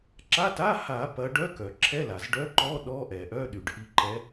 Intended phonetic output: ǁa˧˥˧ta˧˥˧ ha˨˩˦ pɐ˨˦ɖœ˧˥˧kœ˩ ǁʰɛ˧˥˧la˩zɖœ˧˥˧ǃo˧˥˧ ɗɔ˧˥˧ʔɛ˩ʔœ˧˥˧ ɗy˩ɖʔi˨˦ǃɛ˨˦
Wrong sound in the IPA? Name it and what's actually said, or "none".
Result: o˧˥˧ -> ɔ˧˥˧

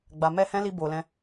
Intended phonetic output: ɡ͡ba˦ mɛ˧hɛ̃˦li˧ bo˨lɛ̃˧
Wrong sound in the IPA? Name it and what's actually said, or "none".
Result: a˦ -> a˨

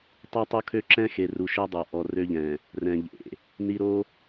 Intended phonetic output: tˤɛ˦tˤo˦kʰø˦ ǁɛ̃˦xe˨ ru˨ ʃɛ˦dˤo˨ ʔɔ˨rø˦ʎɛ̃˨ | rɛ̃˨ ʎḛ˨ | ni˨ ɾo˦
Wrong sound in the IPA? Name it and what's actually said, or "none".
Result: none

